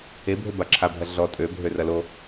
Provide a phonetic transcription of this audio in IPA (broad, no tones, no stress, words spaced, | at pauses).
ebʱø baǁʰabʱɐ ɮɔ tʼøbʱø rɐlo